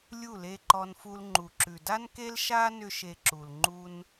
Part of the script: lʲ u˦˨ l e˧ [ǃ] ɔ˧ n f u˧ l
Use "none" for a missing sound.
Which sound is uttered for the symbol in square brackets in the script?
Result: ǃ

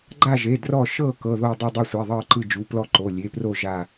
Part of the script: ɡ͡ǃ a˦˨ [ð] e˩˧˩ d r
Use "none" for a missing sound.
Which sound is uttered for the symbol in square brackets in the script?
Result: ʒ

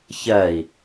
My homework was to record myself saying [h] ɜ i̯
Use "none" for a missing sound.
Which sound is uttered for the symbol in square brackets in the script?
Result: ç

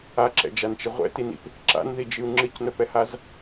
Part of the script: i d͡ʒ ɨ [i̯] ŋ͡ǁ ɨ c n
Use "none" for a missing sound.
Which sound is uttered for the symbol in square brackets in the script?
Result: u̯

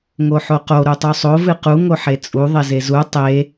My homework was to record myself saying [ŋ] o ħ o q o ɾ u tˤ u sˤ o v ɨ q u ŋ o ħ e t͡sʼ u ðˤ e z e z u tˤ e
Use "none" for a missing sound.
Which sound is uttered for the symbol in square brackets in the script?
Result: ŋ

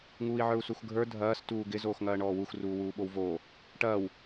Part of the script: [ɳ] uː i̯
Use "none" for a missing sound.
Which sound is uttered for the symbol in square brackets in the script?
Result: ŋ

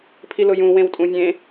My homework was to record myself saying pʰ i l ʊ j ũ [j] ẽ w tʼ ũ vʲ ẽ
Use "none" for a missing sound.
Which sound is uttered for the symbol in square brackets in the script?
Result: w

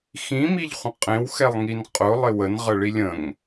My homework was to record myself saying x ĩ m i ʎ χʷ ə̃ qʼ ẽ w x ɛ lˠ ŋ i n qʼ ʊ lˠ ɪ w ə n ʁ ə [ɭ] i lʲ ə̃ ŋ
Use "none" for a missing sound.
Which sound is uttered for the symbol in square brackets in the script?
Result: ɭ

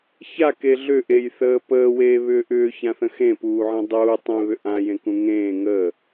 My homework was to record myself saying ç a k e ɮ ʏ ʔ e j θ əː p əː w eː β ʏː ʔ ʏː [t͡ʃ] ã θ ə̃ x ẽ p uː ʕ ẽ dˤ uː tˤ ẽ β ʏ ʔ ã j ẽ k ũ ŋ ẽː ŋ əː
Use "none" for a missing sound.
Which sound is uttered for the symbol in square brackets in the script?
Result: ç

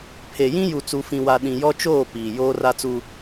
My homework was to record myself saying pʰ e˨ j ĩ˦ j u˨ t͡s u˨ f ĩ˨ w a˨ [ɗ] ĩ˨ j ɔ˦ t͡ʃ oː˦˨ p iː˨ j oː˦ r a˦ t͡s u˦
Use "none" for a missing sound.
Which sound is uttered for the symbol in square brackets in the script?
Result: ɗ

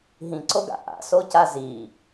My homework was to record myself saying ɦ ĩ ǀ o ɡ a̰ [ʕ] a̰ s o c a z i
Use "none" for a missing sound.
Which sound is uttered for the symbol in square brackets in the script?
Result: ʔ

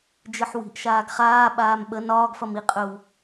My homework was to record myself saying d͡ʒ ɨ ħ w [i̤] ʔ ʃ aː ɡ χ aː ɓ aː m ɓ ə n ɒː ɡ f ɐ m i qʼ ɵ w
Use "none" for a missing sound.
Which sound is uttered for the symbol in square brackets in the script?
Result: i̤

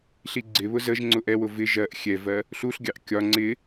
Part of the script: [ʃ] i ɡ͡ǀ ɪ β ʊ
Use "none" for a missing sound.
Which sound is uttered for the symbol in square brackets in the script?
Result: ɬ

